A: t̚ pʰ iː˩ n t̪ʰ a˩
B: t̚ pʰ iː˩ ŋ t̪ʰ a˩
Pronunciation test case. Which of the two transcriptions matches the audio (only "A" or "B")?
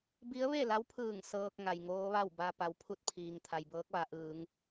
B